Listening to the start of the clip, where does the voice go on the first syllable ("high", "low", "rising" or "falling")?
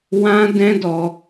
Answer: high